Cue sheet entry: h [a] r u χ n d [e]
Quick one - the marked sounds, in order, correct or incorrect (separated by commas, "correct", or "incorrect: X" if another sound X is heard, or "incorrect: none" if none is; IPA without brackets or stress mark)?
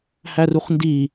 incorrect: æ, incorrect: i